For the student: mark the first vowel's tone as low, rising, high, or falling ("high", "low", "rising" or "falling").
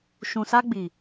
low